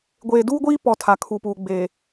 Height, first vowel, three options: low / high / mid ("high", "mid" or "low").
mid